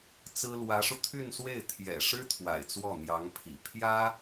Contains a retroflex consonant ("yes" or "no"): yes